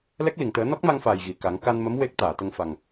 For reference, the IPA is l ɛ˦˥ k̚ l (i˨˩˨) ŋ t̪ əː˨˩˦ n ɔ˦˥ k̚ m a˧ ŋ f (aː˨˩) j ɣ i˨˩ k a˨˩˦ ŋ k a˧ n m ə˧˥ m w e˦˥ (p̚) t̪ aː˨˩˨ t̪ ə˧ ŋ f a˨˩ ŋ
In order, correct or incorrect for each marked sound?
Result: correct, correct, incorrect

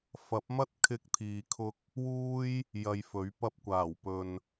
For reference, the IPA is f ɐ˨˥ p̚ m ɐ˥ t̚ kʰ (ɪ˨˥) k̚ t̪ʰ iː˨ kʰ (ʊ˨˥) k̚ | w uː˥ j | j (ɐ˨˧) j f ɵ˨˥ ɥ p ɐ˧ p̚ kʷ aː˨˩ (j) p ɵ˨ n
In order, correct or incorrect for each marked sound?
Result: incorrect, incorrect, incorrect, incorrect

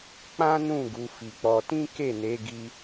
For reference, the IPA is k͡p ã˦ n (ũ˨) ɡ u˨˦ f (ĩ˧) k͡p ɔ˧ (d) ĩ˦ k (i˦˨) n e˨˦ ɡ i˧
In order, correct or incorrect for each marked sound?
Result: incorrect, incorrect, incorrect, incorrect

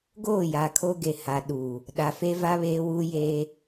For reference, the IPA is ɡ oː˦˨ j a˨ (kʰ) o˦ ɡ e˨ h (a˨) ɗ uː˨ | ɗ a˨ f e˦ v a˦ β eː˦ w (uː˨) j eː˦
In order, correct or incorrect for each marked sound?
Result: correct, correct, incorrect

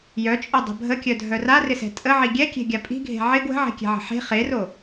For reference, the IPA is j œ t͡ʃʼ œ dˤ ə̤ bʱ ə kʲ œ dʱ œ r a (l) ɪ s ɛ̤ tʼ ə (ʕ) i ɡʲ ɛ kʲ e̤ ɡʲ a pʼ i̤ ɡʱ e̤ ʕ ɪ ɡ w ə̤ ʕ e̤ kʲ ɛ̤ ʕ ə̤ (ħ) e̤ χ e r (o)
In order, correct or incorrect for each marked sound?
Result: incorrect, correct, correct, correct

